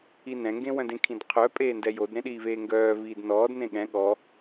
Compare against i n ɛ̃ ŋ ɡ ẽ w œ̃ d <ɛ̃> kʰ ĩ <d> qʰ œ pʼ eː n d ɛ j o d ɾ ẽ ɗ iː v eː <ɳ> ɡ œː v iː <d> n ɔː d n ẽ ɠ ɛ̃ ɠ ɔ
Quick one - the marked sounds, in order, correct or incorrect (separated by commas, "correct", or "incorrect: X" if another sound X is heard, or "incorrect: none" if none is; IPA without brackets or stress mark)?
incorrect: ẽ, correct, incorrect: ŋ, correct